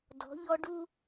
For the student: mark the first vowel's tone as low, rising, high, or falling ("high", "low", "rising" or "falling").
rising